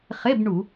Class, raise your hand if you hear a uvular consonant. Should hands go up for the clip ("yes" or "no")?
yes